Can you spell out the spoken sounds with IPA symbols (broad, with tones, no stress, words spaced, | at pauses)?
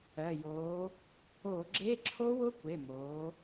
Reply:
ɜ˩˧˩joː˨˥ | o˧˩˧ɡ͡ǁe˧˥˧ ǁʰo˦˥wʊ˦˥kʷe˩˧˩moː˩˧